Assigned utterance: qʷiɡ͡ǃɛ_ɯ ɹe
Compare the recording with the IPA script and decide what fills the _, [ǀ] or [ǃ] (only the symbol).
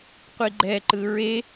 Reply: ǃ